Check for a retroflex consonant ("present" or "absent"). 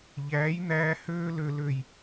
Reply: absent